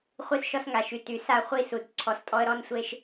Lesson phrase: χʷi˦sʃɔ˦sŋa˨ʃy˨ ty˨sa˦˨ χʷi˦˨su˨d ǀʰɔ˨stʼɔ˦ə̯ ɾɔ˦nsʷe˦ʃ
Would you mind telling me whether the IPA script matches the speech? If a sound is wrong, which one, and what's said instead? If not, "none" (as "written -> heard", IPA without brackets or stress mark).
none